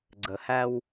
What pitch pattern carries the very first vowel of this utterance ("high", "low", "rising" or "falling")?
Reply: low